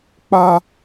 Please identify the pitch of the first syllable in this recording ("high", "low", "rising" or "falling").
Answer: high